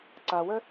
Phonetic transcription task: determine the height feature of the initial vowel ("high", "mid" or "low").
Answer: low